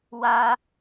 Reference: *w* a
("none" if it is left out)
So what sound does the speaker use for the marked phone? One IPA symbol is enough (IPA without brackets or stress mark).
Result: w